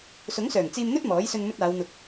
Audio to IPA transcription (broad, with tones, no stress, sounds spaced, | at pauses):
s ʊ˨˥ ŋ s œː˨˩ ŋ t͡s iː˧ m n̪ ɵ˥ t̚ m ɔː˨˥ j s ɵ˧ n m ɵ˧ t̚ aː˨˧ w n̪ ʊ˨ k̚